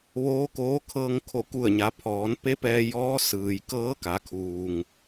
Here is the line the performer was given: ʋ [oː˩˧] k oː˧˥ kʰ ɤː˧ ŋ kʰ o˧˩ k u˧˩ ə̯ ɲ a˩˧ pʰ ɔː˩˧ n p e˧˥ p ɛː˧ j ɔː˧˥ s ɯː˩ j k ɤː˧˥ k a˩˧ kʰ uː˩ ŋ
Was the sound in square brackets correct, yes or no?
no